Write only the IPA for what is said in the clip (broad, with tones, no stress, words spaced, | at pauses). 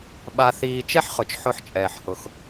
ɓa˧θiː˧ t͡ʃɛ˥ħ χʊ˩˥t͡ʃħʊ˧ħt͡ʃʼɛː˩ħ hʊ˩x